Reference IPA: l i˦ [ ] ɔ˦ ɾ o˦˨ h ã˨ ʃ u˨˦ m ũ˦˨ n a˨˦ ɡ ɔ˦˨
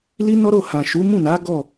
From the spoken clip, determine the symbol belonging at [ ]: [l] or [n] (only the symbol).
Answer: n